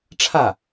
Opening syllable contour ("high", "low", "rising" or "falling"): falling